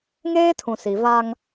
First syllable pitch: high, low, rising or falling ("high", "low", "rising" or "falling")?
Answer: high